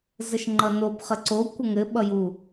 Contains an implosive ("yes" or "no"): yes